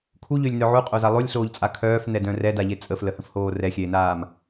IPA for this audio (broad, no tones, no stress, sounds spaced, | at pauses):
kʰ u ʎ ø lʲ n œ ʕ u qʼ o z a lˠ o lʲ ɬ oː ʎ t͡sʼ a kʰ œː f n ɛ d œ̃ r ɛ d a ʎ e t͡sʼ ə f l ə h ə̃ f h oː r ɛ xʲ ɛ e̯ n aː m